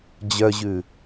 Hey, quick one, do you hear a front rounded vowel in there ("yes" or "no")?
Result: yes